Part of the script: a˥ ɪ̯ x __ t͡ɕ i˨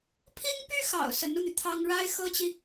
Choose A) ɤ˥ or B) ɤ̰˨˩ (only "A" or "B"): A